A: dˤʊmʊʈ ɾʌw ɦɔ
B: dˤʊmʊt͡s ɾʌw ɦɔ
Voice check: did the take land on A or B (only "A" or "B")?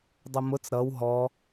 B